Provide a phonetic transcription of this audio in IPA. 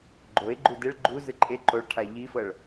ɡ͡ǃoe̯ ɡ͡ǃudeɭ ɡ͡ǃu zɯǃʼe ǃoɭʈʰa ʎifɤɭ

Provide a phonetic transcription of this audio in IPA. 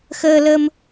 xəː˧lə˧m

